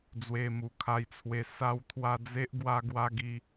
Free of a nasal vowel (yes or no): yes